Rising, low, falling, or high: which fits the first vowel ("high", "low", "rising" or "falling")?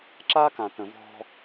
high